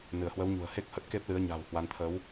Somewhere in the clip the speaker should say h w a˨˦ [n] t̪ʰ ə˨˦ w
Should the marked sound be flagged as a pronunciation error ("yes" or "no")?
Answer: no